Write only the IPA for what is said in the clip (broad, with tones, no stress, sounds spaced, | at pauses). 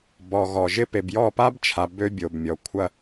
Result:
b ɔ˨ ɣ ɔ˨ ʒ ɪ˦ p e˨ b j ɔ˦˨ p a˦ b t͡ʃʰ a˨ b ø˦ bʲ o˨ b mʲ ɔ˨ kʷʰ ɐ˦